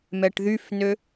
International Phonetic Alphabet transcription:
m ɛ ʈ ð y f n ø

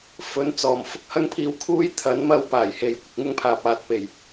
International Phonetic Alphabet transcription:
f ɵ˨ n t͡s ɔː˨˩ m f ʊ˧ k̚ h ɐ˥ ŋ pʰ iː˧ w kʰ uː˥ j t̪ʰ ɐ˨˥ n m ɐ˥ w p aː˨˩ j h e˨ j kʷ ɪ˨ k̚ ŋ ʊ˥ ŋ pʰ aː˨ p̚ aː˨ t̚ p e˨˩ j

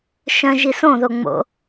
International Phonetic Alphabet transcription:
ʃ œ̃ ʒ i s õ ð o ŋ͡m o̰

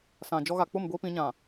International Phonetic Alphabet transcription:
s ã˨ d͡ʒ ɔ˦ ɣ a˨ k͡p ʊ˦˨ m ɡʷ iː˦ p ĩ˨˦ ɲ ã˨

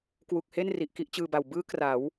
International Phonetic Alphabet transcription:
k w u˨˩ k̚ h e˥˩ n r i˨˩ ʔ k i˦˥ ʔ t͡ɕ ɯː˧ b a˨˩ w b ɯː˦˥ k r a˩˦ w

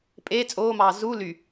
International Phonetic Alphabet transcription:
pʼ eː t͡sʼ oː m ɑː z u l y

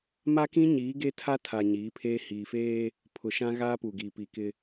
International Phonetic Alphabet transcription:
m a˦ k ĩ˦ ɲ iː˨˦ ɡ e˦ tʰ a˦ tʰ a˨ ɲ iː˨˦ pʰ eː˦ h iː˨ f eː˦ | pʰ ʊ˨ ʃ ã˦ ɣ aː˦ p u˨ ɡ iː˨ p i˨ k ɪ˦

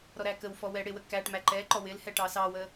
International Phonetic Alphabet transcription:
ɾ ɔ ɾ æ k ə w f ɔ w ɛ ɽ ɪ w ə k æ ʈ m æ ǃ ɛ ǃ ɔ w ɪ l h ɛ ʈ ɑ s ɑ w ə

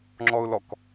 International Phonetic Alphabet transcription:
ŋ͡ǁ ɔ ʊ̯ l ɔ k

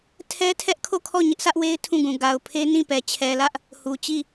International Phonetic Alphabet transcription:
tʰ ɛ˦ tʰ ɛ˦ ʔ kʰ o˦˨ kʰ ɔ˦˨ ɲ ɪ˦ ʔ s ä˦ ʔ w e˦ ɪ̯ tʰ ũ˦˨ ɡ ũ˨ ɡ a˨ ʊ̯ pʰ e˦ n ĩ˦˨ p ɛ˨ t͡ɕʰ ɛ˨ l ä˦ ʔ | h u˨ t͡ɕ i˦˨

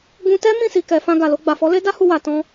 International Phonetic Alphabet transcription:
ɡ ũ˧ t ɛ˦ m ĩ˦˨ s i˨ k ɛ˨ f ã˧ ɡ a˨ l o˧ ɡ͡b a˨ f ɔ˨˦ l e˦ d a˦ h u˧ w a˨ t ɔ̃˧

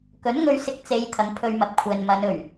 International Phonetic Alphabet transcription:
k ɵ˨˥ n ŋ ɵ˧ ɥ s ɪ˧ k̚ t͡s e˨˧ j t̪ʰ ɐ˨˥ ŋ pʰ ɵ˥ ɥ m ɐ˧ p̚ kʷʰ ɛː˨ n m ɐ˨˧ n ɵ˨˩ ɥ

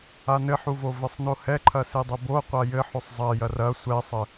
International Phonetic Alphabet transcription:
a n ɘ ħ u v o v ɘ sˤ n o h ɛ ǃʰ ɐ s i dˤ ɘ b o qʷ a j ɘ ħ o sˤ zˤ ɐ j ɐ r ɐ sʷ ɛ sˤ ɘ

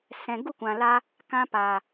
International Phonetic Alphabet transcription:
s ɛ̃˨ ɡ u˦˨ kʷ ã˨ l a˧ | k ã˧ p a˨

